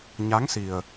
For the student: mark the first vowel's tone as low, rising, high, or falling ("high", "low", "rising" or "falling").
rising